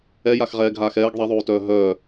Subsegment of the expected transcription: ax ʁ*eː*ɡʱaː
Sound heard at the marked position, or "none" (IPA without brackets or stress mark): ɛː